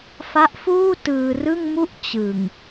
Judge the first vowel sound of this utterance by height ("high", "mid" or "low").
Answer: low